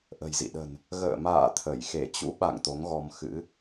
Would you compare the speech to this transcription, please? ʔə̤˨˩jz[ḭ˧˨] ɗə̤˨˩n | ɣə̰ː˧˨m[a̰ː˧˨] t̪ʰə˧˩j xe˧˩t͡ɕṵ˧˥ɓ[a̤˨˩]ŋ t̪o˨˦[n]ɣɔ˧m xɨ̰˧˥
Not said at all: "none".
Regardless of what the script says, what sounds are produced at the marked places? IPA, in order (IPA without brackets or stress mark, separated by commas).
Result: ḭ˧˨, a̰ː˧˨, a̰˧˨, ŋ